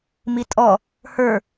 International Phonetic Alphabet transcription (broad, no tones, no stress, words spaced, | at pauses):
mitʼɔ | hə˞